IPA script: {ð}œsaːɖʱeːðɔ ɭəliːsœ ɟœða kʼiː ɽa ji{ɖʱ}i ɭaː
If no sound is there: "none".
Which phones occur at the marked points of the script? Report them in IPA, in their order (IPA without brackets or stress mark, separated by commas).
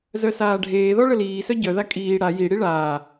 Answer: z, ɽ